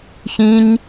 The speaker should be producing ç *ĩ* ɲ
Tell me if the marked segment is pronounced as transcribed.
yes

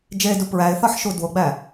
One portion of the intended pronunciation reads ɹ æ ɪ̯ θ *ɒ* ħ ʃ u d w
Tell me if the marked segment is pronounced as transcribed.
yes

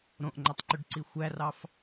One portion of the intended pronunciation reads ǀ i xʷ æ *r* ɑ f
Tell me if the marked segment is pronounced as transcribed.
yes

